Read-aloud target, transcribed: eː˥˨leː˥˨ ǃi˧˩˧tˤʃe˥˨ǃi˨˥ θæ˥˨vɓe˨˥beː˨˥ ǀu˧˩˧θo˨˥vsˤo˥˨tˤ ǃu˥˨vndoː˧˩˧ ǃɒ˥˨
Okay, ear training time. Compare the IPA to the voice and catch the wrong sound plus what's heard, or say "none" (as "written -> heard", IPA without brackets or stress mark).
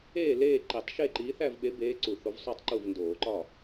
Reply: none